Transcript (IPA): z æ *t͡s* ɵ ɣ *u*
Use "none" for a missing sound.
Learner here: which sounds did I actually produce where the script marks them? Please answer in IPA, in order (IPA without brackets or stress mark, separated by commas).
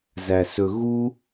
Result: s, u